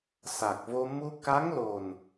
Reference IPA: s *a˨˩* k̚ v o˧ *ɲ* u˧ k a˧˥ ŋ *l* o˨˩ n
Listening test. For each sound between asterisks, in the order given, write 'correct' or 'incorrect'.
correct, incorrect, correct

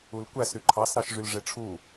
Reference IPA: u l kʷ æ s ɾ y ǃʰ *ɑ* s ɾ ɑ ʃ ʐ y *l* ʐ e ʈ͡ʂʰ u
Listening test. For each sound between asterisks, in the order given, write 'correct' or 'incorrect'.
correct, correct

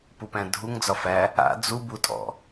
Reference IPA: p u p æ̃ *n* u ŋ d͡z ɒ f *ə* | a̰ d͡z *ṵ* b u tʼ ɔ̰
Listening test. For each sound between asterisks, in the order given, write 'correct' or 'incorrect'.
incorrect, incorrect, incorrect

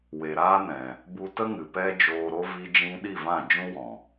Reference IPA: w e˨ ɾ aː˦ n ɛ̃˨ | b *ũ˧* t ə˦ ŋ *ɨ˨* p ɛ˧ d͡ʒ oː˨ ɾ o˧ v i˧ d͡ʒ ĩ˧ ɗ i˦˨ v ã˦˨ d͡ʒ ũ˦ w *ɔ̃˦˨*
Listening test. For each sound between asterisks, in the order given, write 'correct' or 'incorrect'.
incorrect, correct, incorrect

